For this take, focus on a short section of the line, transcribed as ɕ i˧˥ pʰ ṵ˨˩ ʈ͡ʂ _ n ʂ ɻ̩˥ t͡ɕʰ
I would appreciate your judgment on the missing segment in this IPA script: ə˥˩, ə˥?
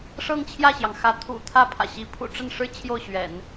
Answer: ə˥˩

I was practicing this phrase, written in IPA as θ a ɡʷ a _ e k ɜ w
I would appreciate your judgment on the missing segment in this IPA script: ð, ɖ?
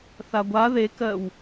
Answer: ð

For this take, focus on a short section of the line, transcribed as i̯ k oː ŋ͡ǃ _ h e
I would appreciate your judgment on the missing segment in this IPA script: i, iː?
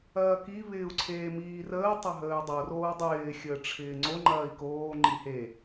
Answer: i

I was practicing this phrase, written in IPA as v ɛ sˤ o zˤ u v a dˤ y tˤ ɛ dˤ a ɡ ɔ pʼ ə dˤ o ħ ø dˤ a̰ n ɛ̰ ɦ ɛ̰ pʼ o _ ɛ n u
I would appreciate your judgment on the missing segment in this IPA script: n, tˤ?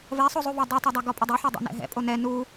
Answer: n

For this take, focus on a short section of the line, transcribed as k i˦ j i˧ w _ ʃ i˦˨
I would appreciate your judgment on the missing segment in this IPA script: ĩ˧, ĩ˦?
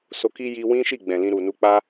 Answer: ĩ˦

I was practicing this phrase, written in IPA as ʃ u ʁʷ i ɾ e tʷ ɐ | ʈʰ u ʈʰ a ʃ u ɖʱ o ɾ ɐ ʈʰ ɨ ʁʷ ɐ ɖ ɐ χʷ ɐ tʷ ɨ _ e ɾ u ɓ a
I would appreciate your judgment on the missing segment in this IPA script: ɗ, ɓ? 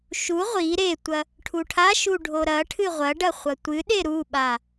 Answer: ɗ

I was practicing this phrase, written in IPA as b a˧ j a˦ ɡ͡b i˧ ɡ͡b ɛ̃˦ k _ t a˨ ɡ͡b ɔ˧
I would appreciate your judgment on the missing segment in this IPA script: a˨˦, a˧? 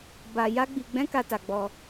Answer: a˧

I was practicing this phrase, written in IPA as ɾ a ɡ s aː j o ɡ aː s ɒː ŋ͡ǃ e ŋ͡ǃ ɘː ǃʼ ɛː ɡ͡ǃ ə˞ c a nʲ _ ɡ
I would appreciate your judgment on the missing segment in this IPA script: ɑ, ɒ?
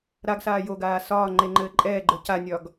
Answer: ɒ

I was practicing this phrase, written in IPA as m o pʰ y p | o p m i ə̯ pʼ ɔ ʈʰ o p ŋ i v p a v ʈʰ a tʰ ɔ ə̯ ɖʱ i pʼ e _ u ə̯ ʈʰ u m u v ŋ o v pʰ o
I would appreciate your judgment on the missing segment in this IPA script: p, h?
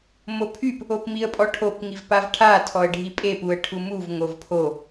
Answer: p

